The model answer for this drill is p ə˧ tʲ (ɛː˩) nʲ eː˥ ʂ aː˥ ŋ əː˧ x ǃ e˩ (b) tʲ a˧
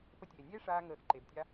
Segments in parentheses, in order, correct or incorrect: incorrect: eː˩, correct

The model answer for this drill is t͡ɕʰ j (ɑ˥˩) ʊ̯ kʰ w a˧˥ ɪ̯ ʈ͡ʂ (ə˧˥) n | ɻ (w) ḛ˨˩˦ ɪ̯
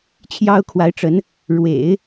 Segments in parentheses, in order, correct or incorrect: incorrect: ɑ˥, correct, correct

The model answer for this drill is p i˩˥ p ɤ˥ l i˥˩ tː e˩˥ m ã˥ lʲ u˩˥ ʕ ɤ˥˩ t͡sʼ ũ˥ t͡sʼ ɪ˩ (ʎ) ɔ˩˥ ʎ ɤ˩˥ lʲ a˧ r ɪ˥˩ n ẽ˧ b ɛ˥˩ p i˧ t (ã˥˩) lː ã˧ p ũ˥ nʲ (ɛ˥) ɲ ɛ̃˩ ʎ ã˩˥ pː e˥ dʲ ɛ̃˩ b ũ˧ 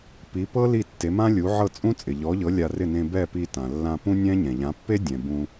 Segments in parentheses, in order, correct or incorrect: correct, incorrect: ã˩, incorrect: ɛ̃˥

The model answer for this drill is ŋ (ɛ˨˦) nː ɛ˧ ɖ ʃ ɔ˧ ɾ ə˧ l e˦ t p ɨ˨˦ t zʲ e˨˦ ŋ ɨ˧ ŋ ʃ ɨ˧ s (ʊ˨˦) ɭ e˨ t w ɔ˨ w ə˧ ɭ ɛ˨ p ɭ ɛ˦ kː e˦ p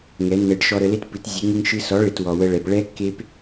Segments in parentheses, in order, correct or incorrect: correct, incorrect: ɔ˨˦

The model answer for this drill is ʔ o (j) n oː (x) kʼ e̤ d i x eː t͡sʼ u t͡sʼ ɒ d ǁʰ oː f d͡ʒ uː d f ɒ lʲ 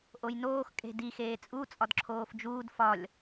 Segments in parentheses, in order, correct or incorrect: correct, correct

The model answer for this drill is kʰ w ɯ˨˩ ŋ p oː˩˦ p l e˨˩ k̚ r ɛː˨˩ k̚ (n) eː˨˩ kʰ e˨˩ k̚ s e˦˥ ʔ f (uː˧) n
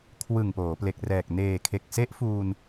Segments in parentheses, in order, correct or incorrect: correct, correct

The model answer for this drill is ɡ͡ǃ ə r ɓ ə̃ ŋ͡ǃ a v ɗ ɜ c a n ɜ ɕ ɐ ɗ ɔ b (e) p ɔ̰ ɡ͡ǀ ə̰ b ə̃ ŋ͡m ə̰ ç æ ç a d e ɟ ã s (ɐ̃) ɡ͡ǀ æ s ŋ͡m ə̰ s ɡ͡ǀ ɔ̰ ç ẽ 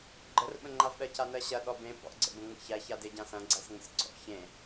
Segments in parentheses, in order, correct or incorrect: incorrect: ẽ, correct

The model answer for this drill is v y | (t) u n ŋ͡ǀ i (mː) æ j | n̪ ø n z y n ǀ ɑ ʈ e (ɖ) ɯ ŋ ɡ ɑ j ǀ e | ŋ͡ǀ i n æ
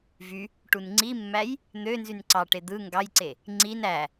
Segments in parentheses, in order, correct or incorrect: incorrect: ʈ, correct, incorrect: d̪

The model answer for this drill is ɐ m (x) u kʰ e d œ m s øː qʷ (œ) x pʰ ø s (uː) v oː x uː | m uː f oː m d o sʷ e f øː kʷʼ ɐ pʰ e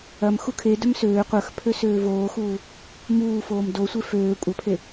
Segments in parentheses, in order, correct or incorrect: correct, correct, incorrect: øː

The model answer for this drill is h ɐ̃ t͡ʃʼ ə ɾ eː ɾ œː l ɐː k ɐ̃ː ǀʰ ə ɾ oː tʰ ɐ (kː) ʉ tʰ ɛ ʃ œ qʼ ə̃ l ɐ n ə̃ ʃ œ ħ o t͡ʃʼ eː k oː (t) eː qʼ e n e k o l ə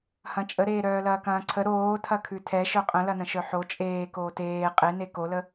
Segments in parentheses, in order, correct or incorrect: incorrect: kʰ, correct

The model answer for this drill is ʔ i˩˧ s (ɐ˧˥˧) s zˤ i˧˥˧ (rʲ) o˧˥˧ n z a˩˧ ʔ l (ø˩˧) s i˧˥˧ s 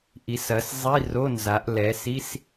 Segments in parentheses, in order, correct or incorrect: incorrect: ɐ˩˧, incorrect: r, incorrect: ɛ˩˧

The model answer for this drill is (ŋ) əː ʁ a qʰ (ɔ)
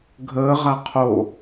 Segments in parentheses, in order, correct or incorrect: incorrect: ɡʱ, incorrect: o

